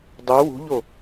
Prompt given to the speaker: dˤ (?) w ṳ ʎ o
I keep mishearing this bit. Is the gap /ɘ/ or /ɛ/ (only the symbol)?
ɛ